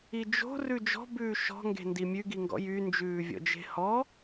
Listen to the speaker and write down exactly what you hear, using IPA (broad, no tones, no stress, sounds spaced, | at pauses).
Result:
i d͡ʒ o̤ r ʉ d͡ʒ ɔ̤ b ʉː ʃ ɔ̤ ŋ ɡ e̤ n d i mʲ ʉ ɡ i ŋ ɡ ɔ̰ j y n d͡ʒ ʉː vʲ ɔ̰ d͡ʒ e̤ h ɔ